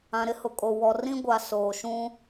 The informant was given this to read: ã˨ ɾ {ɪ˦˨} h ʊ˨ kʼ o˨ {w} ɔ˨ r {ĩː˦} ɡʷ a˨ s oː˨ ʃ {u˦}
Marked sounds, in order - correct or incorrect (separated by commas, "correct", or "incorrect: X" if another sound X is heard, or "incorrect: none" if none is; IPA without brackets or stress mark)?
incorrect: ɪ˦, correct, incorrect: ĩ˦, incorrect: ũ˦